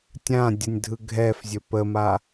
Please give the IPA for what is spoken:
tʲ ã dʲ ə nʲ dʱ ɯ ɡʱ ɛ f zʲ ɵ p ə m a

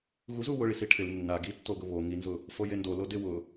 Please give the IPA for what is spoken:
ɣ u z u w ʊ ɭ i s i ʈʰ ɪ l nː a ɡ i tː o ɡ ʊ β o ŋ i n z ʊ | f o j e n d o l o d ɪ w ʊ

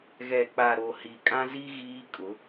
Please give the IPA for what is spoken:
ɣ ɛ˨ k͡p a˨ ɾ o˨ h i˨ kʼ ã˦ z i˦ ɣ iː˦ kʼ ʊ˨˦

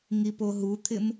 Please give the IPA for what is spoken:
ŋ i p o ɦ u t̪ʰ ɪ m

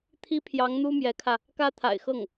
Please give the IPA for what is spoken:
t̪ʰ i˥ pʰ j ɑ˧˥ ŋ n̪ u˥ m j ɛ˧˥ kʰ ä˧ | k ä˥ t̪ʰ a̰˨˩ ɪ̯ x ɤ˥˩ ŋ

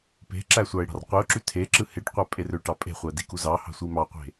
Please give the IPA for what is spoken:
p e̤ ǁ æ sʷ ɑ ɪ̯ ɽ ɑ̤ r qʷ i ʊ̯ ǁ y tʰ e ǁ ɯ h e ʈ qʷ æ pʼ e r ø ʈ ɑ pʼ e̤ χʷ æ d i k u z ɑ h ɑ̤ sʷ i m ɑ qʷ e̤

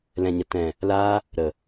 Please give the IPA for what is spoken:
l ɛ̃˨ ɲ ə˨ t ɛ̃˨ | l aː˧ | ɾ ə˨

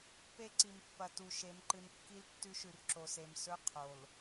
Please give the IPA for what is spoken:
p e˦ ǀ i˨ m pː ɐ˨ t u˨ ʃ e˨˦ m ǃ ɨ˨ n kː i˦ l tː ʉ˦ ʃ ʉ˨ r ǁ o˨ s e˨ m s ɵ˦ qʰ o˨ l

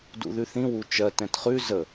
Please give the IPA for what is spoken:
d ṵ ð ʉ θ ĩ w u t͡ʃ ɜ t ɛ̃ t χ ʉ z ə

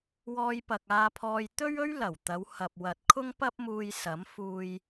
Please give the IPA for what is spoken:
w ɔː˧ j p ɐ˨ k̚ aː˧ pʰ ɔː˧ j t̪ ɵ˥ ɥ ɵ˥ ɥ l ɐ˨˩ w t̪ ɐ˨˧ w h ɐ˨ p̚ w ɐ˨ t̚ kʰ ʊ˥ ŋ p ɐ˥ p̚ m uː˧ j s ɐ˨˥ m f uː˧ j

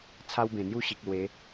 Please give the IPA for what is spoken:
t͡sʰ a˦ w b ẽ˨˩ n̪ j u˥˧ ɕ i˨ k̚ l w e˨˦

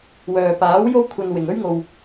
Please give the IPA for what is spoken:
w œː˨ p aː˨˥ w j o˥ w kʷʰ ɐ˧ n w ɪ˨ ŋ ɵ˥ ɥ ŋ o˧ w

